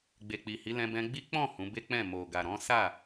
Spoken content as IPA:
ɡ͡b e˨ k͡p i˨ h i˨˦ l ɛ̃˧ b ɛ̃˧ ɡ͡b i˦ k͡p ɔ̃˦˨ h ũ˨˦ b e˦ k͡p ɛ̃˦˨ m o˨ ɡ a˨ ɾ ɔ̃˨˦ s a˦˨

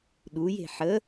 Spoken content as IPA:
ɗ u j e̤ ħ ə

